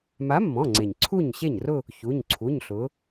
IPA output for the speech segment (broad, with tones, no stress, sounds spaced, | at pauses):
m a˨˥ mː ɔ̃˩˧˩ ŋ͡ǀ e˩ ɲ ǀʰ u˥˩ ɲ ɕ e˥˩ ɲ r ʊ˥˧ | ç u˩˧˩ ɲ ǀʰ u˩˧˩ ɲ ɬ ʊ˩˧